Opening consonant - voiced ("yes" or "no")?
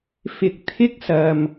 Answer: no